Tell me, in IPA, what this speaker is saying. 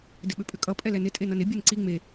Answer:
d ɪ ɓ ʏ pʼ ʏ kʼ ʌ pʼ ɛ l ɛ n ɪ tʼ e n ʌ n ɪ bʲ e n ǀ i ŋ͡m e

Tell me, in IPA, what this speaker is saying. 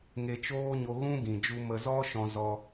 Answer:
ŋ e˧ t͡ʃ oː˦ ɲ o˧ ɣ ũ˦ ɡ ĩ˨ d͡ʒ u˧ m ə˧ z ɔ˦ ʃ ɔ̃˧ z ɔ˧

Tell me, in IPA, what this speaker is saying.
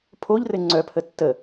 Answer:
pʰ o ʎ r ɘ ŋ͡ǀ œ pʰ ə tː ə

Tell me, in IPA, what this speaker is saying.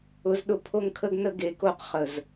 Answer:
ʊ˧ z ɗ ʊ˧ pʰ o˦ ŋ kʰ ə˦ ɡ n ə˦ ɡ e˨˦ k o˦˨ q χ ə˨ z

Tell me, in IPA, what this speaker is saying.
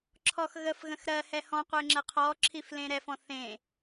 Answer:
ǁʰ ɔ x ɣ ə f ɣ ə̃ x ɾ ɜ h ɛ h ɔ̃ qʷ e ŋ͡ǁ ə qʰ ɔ ǁʰ i f l ẽ ɾ ɛ f ɔ̃ θ ẽ

